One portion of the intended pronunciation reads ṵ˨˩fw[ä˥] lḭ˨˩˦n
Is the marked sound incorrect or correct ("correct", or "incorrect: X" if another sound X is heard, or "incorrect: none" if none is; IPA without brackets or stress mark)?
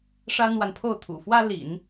correct